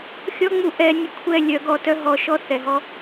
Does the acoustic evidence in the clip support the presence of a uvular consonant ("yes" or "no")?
no